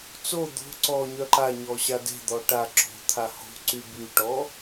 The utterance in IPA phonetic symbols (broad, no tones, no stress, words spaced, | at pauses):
t͡so d̪o̤ ǀɔ ɲœǃaɲɔ ɕade̤d̪ɔ ʈa ǁo̤t̪ʰa ho̤ǀy byʈɔ